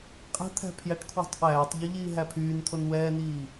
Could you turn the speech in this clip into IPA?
qʼ æ̤ t̪ʰ æ̤ pʰ j æ ʈ kʰ w i̤ tˤ ʔ æː tˤ ʎ u ʎ iː ɦ æ pʰ yː n t̪ʰ o n w ɛː n iː

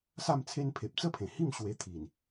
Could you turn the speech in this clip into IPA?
s a˥˧ m t͡sʰ e˦ n pʰ e˨ p̚ t͡s ə˥˧ pʰ ẽ˨˩ h i˥˧ m ɕ w e˧ t̪ʰ i˨˩ n

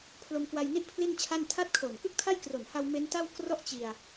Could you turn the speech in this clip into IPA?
pʰ l o˧ m k w a˧ j n i˥˩ ʔ pʰ l i˥˩ n t͡ɕʰ a˥˩ n tʰ a˦˥ t̚ kʰ o˨˩ n k ɯ˥˩ k̚ tʰ a˥˩ j k r o˨˩ n h a˧ w m e˦˥ n t a˥˩ w k r ɔ˥˩ ʔ t͡ɕ i˧ a̯

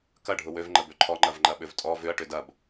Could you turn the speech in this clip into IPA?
k ɐ ɖʱ ʊ w ø v ŋ͡ǃ ə b ø ǃʰ ɔ ŋ͡ǃ ɐ v ŋ͡ǃ ɐ ɓ ʏ v tʼ ɔ v ʏ ɐ̯ ʈ ʏ d ɐ b

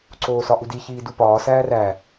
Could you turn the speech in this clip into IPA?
ǀ oː s ɒ ʔ u d i ç iː d u p ɒː s æː r æ

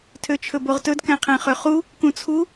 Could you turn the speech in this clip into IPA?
tʰ ø t͡ʃʰ ɵ b o ʁ t ɵ d k æ̃ qʰ æ̃ χ ø χ u | k ũ t͡sʰ u

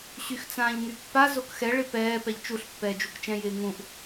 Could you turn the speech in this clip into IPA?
ɕ y x t͡s ãː ʎ ŋ y pː a z o k x ɛ ɭ ɪ p ɛː p ɛ ʎ t͡ʃ u ɬ pː ɛː d͡ʒ u k t͡ʃ ɛ̃ j ɪː ŋ ũ ʔ

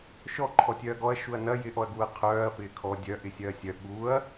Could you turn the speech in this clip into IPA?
ʃ ɔ ǃʰ ɔ tʲ œ ɐ̯ ɡ ɔ ɐ̯ ʃ u ɐ̯ n ɐ j ɪ ʔ ɔ ɐ̯ ɡ u ɐ̯ qʰ œː ɐ̯ f ɪː kʰ ɔ dʲ œ ʔ ɪ sʲ œ ɐ̯ sʲ œ ɠ u ɐ̯

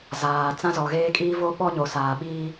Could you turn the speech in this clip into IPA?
z aː˨ t͡s ã˦ z ɔ˨ ɣ eː˦ kʼ iː˦ v o˦ ɓ ɔ˦ ɲ o˨ s aː˨ ɓ iː˦

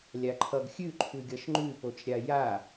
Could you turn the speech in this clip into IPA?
lʲ a ǃʰ ʌ ɡ xʲ ʉ ǃʰ ʉ ɡʲ ʌ ʃ ŋ͡ǃ ʉ p o t͡ʃ ɾʲ a j a

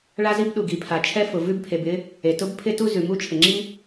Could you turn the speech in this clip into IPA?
ɭ a˥ z i˥ b ɗ u˩ ɡ i˩ pʰ a˩ t͡ʃʰ ɛ˥ f ʊ˩ v ʉ˥ b pʰ e˩ b ɪ˥ | e˩ t ʊ˥ b pʰ ɪ˥ t u˥ z ʉ˩ m u˥ t͡ʃʰ ɪ˩ ŋ͡ǁ i˥

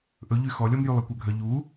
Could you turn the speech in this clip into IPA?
ʔ ɵ ʎ y x ɔ lʲ ɔ m j y lˠ i kʷ œ ɡʱ œ ʎ u

